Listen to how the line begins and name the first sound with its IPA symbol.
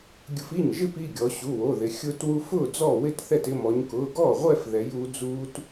ɡʲ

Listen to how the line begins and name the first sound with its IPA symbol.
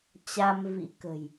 t͡ɕ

